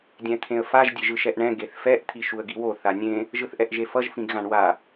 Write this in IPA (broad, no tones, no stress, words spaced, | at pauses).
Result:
dʲɛ̃t̪ʰẽə̯faʒ dʲeʒɯʃɛʔɳɛ̃ ɡeθfɛʔ t̪ʰiʃuə̯ɡiwo θanʲẽ | ʒɯθʔɛʔʒefʌʒ fĩɡɣãɳwa